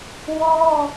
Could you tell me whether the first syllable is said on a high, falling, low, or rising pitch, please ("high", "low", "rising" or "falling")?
high